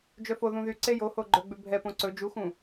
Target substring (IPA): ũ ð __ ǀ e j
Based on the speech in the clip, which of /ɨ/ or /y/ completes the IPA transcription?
y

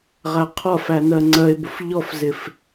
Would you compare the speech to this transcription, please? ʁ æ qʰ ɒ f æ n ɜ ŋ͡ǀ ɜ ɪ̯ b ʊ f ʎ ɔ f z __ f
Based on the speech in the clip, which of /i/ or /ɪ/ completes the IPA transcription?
ɪ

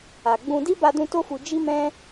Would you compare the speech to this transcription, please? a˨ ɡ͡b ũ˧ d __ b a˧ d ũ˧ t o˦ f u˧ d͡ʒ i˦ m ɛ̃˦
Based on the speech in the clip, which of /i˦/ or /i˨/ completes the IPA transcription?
i˦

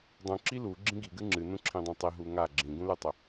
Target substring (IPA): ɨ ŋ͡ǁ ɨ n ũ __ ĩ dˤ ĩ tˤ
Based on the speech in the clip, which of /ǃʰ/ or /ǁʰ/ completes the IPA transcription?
ǁʰ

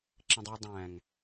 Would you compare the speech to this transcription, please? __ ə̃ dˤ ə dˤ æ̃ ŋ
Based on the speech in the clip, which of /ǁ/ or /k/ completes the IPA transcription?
ǁ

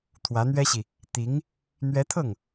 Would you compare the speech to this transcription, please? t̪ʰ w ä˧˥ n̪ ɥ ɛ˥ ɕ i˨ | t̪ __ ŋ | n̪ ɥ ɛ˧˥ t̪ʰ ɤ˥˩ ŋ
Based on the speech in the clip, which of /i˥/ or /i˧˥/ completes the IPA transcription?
i˧˥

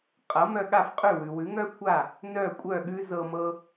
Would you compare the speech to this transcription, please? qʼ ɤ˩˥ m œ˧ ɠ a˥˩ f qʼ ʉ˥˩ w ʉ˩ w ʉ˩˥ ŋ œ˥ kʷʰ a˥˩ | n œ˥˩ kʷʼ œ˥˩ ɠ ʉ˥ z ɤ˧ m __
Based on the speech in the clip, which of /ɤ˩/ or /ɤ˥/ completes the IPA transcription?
ɤ˥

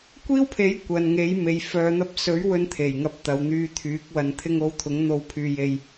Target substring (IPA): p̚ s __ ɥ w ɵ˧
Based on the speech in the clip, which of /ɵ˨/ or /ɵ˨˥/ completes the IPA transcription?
ɵ˨˥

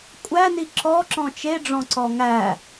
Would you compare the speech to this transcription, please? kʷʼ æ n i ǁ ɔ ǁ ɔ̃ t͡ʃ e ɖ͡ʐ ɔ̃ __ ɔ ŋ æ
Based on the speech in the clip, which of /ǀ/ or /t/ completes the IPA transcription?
ǀ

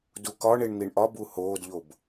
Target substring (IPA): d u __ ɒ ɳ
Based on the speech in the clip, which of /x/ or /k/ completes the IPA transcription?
k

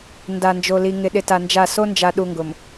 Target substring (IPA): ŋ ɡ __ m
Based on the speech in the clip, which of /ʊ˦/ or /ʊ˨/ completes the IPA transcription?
ʊ˨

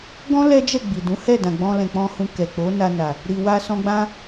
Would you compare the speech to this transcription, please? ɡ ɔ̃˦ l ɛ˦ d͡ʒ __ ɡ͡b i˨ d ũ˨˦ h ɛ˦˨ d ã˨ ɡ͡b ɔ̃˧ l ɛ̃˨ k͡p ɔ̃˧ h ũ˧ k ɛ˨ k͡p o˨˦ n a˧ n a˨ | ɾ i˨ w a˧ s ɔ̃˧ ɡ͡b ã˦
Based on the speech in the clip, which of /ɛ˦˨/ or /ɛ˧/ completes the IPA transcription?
ɛ˦˨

